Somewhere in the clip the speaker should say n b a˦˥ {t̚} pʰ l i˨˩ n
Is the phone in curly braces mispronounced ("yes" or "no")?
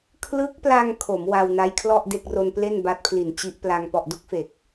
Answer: no